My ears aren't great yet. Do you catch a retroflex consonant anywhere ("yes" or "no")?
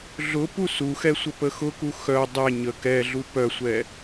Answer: no